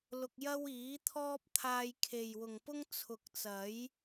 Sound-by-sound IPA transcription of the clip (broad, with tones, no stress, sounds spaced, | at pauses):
l ʊ˧ k̚ j ɐ˥ w iː˨˥ t̪ʰ ɔː˥ p̚ t̪ʰ aː˧ j kʰ e˨ j w ʊ˨ ŋ p ʊ˥ ŋ t͡sʰ ʊ˨ k̚ t͡s ɐ˨˥ j